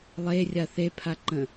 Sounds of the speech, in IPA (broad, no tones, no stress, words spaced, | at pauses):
lˠerʲa θepʰaǃə̃